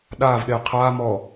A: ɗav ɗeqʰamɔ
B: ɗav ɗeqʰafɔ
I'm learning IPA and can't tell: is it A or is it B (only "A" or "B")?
A